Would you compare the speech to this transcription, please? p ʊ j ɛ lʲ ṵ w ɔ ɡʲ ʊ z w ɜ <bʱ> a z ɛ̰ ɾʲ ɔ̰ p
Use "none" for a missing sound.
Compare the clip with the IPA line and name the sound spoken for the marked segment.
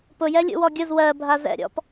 bʱ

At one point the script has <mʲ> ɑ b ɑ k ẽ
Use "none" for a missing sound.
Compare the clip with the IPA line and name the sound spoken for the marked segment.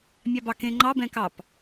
mʲ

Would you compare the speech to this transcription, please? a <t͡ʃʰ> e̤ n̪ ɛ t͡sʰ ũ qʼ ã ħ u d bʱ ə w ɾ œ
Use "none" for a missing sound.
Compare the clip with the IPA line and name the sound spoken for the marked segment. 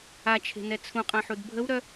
t͡ʃʰ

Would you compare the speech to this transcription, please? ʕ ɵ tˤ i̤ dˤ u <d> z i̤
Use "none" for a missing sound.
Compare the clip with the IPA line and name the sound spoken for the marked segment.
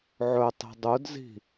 d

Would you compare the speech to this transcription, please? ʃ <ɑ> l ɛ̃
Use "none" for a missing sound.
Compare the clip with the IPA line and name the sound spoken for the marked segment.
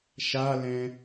a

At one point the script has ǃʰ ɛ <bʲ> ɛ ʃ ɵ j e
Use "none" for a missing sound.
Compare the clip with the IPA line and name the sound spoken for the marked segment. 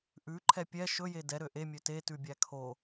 pʲ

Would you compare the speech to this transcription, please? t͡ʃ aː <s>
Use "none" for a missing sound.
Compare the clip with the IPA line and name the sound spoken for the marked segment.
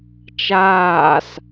s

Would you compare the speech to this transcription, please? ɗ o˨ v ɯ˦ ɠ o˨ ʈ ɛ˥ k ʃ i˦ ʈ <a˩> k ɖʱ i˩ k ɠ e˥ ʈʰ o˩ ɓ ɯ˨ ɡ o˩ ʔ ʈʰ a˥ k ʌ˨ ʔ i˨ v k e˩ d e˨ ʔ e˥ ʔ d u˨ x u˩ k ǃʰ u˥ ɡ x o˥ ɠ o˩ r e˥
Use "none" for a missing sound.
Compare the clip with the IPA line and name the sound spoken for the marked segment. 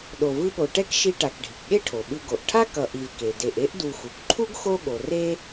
a˨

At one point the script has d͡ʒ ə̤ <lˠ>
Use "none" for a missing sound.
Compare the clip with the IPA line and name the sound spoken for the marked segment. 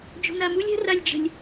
lʲ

